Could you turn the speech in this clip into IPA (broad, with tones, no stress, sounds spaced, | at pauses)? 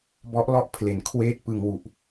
b ɔ˦˥ ʔ l ɔ˦˥ ʔ pʰ l e˩˦ n kʰ w eː˥˩ t̚ p ɯ˧ ŋ w u˨˩ ʔ